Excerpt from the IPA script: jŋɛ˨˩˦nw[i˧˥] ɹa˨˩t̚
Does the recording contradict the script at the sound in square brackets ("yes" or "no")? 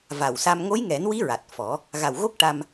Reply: no